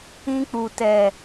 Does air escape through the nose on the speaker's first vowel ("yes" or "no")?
yes